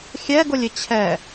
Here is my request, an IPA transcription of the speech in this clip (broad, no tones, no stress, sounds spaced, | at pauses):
xʲ ɛ ɡ ʊ lʲ ɪ t͡ɕʰ ɛ